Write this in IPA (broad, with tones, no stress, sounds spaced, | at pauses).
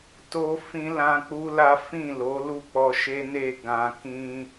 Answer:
t o˦ f ĩ˦ l ã˦ k͡p u˦ l a˦ f ĩ˦˨ l o˨˦ l u˦˨ k͡p ɔ˧ ʃ e˦ n e˦˨ ɡ ã˨ k ĩ˧